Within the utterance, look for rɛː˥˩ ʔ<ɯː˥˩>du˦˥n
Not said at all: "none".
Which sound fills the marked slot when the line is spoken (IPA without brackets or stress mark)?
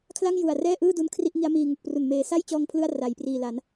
ɯː˥˩